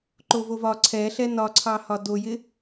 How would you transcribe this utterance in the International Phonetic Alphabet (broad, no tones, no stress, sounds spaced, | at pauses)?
ǃ o v o v ɒ ǀʰ ɛ ɬ ɛ n ɒ ǀʰ ɑ h ɒ d o j ɪ